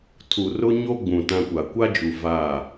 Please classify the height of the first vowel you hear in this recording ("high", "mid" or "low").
high